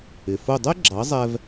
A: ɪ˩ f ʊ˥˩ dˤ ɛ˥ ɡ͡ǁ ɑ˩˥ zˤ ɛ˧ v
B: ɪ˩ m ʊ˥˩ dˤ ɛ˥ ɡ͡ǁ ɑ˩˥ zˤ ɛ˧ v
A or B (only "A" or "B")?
A